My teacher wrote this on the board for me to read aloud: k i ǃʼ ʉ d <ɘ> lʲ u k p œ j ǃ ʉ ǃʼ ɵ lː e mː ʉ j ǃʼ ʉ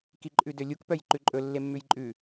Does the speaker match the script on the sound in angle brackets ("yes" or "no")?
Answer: no